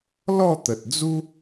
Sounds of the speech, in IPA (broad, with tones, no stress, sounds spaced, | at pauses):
l ɔ˥˧ t̪ ə˨ t̚ d͡z u˦